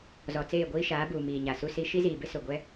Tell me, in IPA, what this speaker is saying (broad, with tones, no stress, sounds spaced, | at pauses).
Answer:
z ɔ˨ t͡s eː˦˨ ɡʷ iː˦ ʃ aː˨˦ b uː˨ m iː˨ ɲ a˨ s u˦ s i˦ ʃ i˦ z iː˨ b ɪ˦ s ʊ˨ ɡʷ ɛ˦